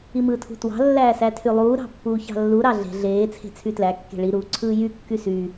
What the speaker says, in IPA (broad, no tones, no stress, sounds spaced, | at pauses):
i m ɯː tʰ ṳ t w ɑ̤ lː æː s æ tʰ y lˠ uː ɾ ɑ̤ pː uː ç ɑ̤ lː u ɾ ɑ ɮ e̤ ɮ eː t͡sʰ e̤ t͡sʰ y t l æ kː e̤ ɭ i ɾ uː ǀʰ ɯː j y kː y s y